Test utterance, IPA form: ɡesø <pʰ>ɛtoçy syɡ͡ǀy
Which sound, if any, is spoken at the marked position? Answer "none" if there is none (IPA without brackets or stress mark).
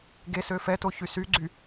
f